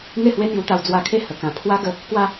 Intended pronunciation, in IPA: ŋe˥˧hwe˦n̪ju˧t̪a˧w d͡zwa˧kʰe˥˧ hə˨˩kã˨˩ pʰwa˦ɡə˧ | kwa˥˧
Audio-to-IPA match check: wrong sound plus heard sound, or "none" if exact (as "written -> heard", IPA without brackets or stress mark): none